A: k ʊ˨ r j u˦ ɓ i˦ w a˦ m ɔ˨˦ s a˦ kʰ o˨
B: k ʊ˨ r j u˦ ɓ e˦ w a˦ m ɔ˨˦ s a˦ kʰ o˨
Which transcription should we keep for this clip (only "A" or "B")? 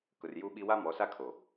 A